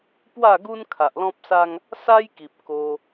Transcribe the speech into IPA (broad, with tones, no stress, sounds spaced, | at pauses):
p w a˥˧ ɡ u˦ n kʰ a˨ ʔ l ɔ̃˦ p̚ s a˦ ŋ | s a˦ j k i˨ p̚ k o˧